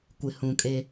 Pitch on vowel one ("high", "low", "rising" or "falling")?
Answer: low